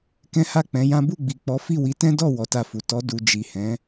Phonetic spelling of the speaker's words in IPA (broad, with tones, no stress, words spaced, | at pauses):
kɛ̃˦ha˦˨k͡pɛ̃˨˦jã˦ bu˦˨ɡ͡bi˨k͡pɔ˨˦ fi˦˨ wi˨˦tɛ̃˦dɔ˦˨ wɔ˨˦ta˦˨fu˨ tɔ˨˦ du˧ d͡ʒi˨hɛ̃˨˦